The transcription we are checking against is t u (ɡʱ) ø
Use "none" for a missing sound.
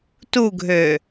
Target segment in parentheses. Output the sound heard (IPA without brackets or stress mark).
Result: ɡʱ